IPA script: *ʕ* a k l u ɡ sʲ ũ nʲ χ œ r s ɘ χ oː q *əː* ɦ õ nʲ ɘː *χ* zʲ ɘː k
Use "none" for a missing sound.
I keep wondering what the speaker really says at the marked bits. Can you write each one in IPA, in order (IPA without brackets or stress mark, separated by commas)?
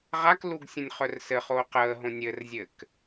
ʁ, əː, r